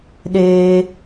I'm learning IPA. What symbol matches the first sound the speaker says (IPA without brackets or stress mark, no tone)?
ɗ